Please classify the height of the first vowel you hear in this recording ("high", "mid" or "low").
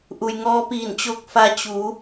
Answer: high